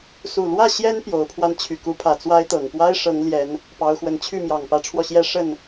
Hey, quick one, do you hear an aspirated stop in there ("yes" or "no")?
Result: yes